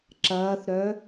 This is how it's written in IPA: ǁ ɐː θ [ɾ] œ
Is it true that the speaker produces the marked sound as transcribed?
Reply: yes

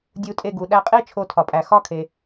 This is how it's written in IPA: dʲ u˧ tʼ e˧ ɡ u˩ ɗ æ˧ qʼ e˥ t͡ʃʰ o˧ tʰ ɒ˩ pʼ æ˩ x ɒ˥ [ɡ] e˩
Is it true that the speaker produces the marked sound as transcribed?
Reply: no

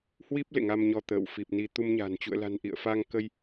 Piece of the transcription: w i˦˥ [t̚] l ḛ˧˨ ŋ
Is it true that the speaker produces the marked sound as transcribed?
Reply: no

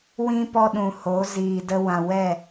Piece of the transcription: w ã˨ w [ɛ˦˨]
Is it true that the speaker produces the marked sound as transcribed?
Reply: yes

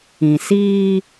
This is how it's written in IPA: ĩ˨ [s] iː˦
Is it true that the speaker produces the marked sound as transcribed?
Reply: yes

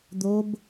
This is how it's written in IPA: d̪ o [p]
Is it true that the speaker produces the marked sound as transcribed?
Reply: no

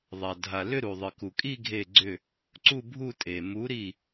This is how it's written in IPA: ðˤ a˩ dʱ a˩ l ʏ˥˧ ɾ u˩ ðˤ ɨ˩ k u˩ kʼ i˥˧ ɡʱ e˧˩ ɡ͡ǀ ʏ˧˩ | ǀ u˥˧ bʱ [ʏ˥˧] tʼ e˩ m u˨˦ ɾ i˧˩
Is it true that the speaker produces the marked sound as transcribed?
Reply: no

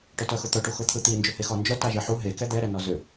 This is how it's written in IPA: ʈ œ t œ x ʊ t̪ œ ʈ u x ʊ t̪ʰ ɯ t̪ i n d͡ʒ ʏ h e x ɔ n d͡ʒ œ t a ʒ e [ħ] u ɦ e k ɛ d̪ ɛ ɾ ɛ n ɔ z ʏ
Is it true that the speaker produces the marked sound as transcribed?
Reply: yes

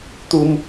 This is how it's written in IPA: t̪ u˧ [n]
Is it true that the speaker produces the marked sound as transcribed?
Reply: no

